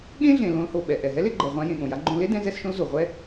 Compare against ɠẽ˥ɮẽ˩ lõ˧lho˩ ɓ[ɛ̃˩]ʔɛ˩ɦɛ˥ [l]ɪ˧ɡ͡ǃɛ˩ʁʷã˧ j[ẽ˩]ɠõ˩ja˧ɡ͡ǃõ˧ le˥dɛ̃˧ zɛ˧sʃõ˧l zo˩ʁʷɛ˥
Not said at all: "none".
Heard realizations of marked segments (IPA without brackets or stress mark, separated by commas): ɛ˩, l, ẽ˩